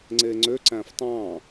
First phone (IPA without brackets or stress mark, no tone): ŋ͡ǀ